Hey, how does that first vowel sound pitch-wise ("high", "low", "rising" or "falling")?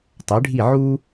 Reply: rising